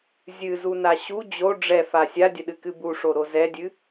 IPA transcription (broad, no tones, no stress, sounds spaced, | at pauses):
zʲ ɨ z u n a ɕ u d͡ʑ o ɖ͡ʐ ɛ f a sʲ a dʲ ə ɗ ɨ k ɨ b u ʂ o ɾ o z ɛ dʲ ɨ